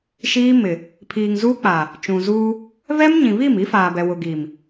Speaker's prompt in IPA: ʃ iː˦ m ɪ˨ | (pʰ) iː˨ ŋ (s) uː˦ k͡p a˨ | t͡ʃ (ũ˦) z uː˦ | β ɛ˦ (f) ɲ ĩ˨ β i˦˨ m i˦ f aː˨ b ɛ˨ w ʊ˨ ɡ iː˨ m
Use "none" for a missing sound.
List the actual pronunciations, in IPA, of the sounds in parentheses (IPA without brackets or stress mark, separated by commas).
pʰ, z, ũ˨, m